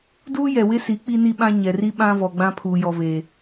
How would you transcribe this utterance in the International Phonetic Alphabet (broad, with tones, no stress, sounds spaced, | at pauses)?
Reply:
d uː˦ j ɛ˨ w ɪ˦ s i˨˦ k͡p i˦ n i˦ ɓ ã˦ ɲ ɛ˨ r i˦ ɓ ã˦ v ɔ˨ ɡ͡b ã˦ pʰ uː˨ j ɔ˨ v eː˨